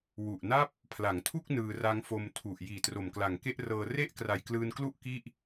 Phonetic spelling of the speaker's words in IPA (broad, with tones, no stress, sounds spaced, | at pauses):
w u˨˩ ʔ n a˥˩ p̚ | pʰ l a˩˦ ŋ tʰ u˥˩ k̚ n ɯː˧ r a˦˥ ŋ f o˧ m tʰ u˨˩ ʔ j iː˨˩ t r o˨˩ m k l a˨˩ ŋ k e˥˩ ʔ r ɤː˧ r e˥˩ ʔ k r a˨˩ j k l ɯː˧ n k l u˥˩ ʔ k i˥˩ ʔ